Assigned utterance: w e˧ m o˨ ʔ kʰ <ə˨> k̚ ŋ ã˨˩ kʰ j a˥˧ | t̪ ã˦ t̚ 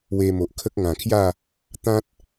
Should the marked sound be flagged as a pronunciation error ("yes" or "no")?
yes